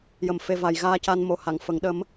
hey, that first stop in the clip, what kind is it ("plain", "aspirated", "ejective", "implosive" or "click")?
plain